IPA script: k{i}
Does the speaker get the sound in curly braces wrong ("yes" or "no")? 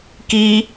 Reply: no